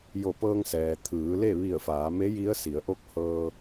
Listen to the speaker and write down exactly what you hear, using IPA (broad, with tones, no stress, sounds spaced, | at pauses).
j o˧˩ p ɤː˧ ŋ s ɛː˩ t̪ʰ ɯː˩˧ l e˥˨ ʋ i˧˩ ə̯ f aː˩˧ m e˧˥ j i˧˥ ə̯ s i˩˧ ə̯ ʔ o˧˥ k̚ h ɤː˧